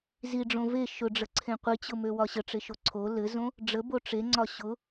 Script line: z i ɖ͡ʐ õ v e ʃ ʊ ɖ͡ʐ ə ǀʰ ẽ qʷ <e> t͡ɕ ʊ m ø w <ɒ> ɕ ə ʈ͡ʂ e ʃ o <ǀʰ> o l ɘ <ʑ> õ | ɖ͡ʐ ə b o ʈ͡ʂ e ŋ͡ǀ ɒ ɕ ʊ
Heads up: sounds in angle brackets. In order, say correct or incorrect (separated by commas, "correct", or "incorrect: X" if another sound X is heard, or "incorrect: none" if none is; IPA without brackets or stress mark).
incorrect: i, correct, correct, incorrect: z